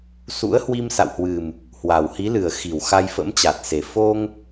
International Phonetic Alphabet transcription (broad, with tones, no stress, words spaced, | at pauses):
sṵ˧˥ə̯hwi˧msa̰˧˨whwɨ˨˩m | hwa˨˩whi˨˦lɨ˨˩ə̯ xi˧˩w xa˧jfə̰˧˥mt͡ɕa˨˩t̚se˨˩ fo˧ŋ